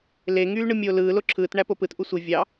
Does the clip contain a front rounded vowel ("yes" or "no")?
yes